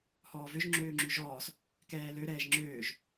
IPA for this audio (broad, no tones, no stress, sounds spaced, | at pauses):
h ɔː v ø ʒ ŋ͡ǁ øː ŋ͡ǁ ʉ ʒ ɔː s | k ɛː l ø ɾ ɛː ʒ ŋ͡ǁ øː ʒ